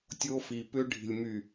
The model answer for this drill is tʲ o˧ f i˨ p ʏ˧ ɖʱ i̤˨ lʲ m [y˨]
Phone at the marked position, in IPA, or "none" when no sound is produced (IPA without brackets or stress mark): y˨